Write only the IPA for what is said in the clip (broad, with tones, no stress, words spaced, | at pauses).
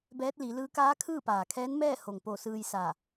bɛː˧˥t̚li˩˧lɯː˧˥ kaː˧˥kʰɯː˥˨paː˩kʰɛː˧˥n mɛː˥˨ ho˩ŋ po˧˩sɯː˧j sa˧˩